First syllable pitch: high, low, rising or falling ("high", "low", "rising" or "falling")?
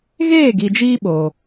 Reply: falling